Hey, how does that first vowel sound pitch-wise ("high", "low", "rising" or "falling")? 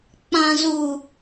high